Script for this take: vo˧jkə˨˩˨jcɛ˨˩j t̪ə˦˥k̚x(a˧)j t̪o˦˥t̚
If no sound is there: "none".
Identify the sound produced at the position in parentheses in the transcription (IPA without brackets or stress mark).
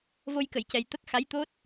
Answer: a˧˥